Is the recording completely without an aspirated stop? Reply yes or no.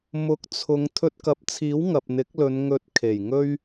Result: no